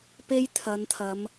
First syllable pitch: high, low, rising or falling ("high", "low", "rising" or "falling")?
high